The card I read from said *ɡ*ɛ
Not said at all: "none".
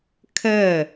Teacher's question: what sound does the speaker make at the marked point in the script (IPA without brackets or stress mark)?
kʰ